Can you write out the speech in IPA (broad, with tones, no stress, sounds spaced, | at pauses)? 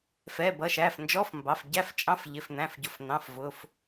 f ɛ˩˧˩ b ʌ˩˧˩ ʃ æ˩˧˩ f n d͡ʒ ɔ˧˥˧ f m b ɑ˩˧˩ f ɟ æ˧˥˧ f t͡ʃʼ ɑ̃˧˥˧ f ʎ ɪ˩˧˩ f n̪ æ̃˩˧˩ f ɟ ʊ˩˧˩ f n̪ ɑ̃˩˧˩ f v ʊ˩˧˩ f